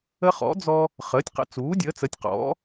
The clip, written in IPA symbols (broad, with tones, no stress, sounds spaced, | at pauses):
ə˦ χ ɔ̰˩˥ d͡z ɔ˦ | χ əː˩˥ tʲ q ə̰˩˥ t͡s uː˩˥ dʲ əː˩˥ t͡s ə˩˥ tʲ q ɔ̰˩˥